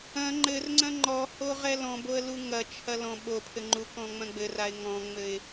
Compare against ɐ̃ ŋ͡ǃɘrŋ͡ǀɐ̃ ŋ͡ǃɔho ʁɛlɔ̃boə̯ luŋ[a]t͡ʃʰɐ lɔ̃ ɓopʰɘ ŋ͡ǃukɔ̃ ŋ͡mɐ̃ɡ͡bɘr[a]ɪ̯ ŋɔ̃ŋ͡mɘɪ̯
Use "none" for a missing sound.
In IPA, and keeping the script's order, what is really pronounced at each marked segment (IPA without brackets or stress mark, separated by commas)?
ɐ, a